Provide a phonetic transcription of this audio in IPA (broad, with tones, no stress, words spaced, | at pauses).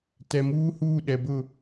tɛ˨muː˦huː˦˨ ɗɛ˨bʊ˦˨